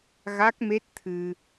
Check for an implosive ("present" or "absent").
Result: absent